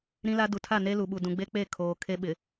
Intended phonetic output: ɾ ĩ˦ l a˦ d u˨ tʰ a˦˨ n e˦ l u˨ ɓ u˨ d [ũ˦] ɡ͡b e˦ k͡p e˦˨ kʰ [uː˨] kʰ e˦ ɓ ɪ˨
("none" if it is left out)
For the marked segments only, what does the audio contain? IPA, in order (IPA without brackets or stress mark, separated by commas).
ũ˨, oː˨